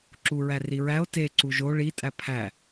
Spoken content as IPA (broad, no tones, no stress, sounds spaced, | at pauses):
ǁ u ɹ æ r i ɹ æ o̯ t e ǀ u ʒ o ɭ i tʼ æ pʰ æ